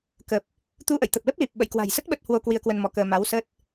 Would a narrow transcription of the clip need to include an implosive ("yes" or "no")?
yes